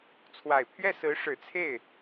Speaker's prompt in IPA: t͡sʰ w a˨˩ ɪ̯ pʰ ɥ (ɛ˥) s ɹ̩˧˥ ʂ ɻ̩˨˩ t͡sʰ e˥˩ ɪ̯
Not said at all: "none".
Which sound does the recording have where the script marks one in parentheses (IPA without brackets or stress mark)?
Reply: ɛ˥˩